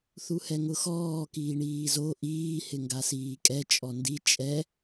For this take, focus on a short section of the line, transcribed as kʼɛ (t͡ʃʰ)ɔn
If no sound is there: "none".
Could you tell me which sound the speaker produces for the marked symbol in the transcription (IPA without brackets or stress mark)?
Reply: t͡ʃʼ